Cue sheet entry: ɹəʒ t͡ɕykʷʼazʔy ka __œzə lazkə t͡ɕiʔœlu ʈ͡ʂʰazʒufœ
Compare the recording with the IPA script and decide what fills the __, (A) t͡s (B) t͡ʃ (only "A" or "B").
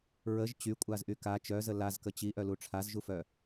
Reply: B